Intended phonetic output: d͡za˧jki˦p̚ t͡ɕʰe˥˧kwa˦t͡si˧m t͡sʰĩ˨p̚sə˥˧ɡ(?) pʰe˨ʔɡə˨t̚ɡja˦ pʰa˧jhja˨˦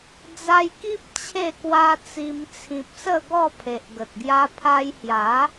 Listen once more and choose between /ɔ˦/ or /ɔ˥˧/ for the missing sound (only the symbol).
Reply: ɔ˥˧